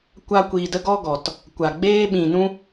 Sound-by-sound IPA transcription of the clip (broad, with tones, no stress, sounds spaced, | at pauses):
kʷ a˦ kʷ iː˧ d ə˦ ɡ ɔ˦ ɡ ɔ˨ t | kʷ a˨ ɡ͡b eː˧ ɓ ĩ˨ n ũ˧